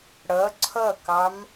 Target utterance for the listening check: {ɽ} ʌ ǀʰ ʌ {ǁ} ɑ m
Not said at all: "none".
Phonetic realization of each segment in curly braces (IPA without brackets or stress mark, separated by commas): ɽ, k